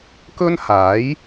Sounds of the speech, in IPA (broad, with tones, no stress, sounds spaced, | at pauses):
k ɵ˥ n h aː˨˥ j